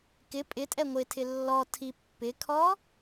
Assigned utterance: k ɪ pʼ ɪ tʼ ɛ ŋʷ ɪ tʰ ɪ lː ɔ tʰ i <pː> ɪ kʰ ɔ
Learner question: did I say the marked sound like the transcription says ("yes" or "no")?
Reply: yes